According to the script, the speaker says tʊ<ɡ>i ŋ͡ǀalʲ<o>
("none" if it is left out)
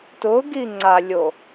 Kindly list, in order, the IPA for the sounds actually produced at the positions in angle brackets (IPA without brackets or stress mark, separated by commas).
ɡ, o